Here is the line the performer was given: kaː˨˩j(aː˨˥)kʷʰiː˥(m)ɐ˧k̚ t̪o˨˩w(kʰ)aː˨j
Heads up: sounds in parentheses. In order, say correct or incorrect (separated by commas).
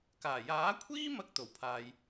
correct, correct, incorrect